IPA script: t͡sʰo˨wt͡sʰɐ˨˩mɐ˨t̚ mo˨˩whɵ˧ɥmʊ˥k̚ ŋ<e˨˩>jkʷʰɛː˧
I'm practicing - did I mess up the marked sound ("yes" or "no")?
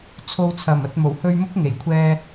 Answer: no